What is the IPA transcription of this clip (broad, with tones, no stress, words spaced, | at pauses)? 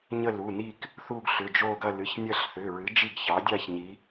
ɲə˥˧lu˩˧˩ni˥˧k | θu˥˧ɡɬʏ˩˧˩d͡ʒo˥˧ɡɐ˥˧ lɨ˩˧˩çnʲɐ˥˧ɬθʏ˩˧˩ɹɨ˩˥ d͡ʒi˥˧ɡçɑ˩˥dʲa˥˧ç ɲi˩˥